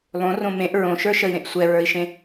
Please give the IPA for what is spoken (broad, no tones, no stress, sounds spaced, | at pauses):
lˠ õ r õ m ẽ ʔ ɹ õ ʃ ə˞ ʃ ə i̯ ɾ ẽ ʔ sʷ ɛ ɹ ə˞ i̯ ʃ ẽ